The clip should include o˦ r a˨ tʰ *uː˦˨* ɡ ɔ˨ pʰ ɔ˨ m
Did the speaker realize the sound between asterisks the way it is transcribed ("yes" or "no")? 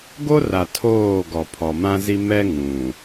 no